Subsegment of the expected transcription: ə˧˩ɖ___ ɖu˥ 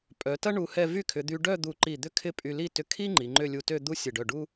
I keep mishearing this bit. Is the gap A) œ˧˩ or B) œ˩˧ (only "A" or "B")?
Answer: A